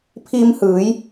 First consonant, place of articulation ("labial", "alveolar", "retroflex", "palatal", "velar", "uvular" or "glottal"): labial